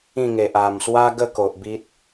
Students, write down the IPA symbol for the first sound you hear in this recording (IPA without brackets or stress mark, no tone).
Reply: ĩ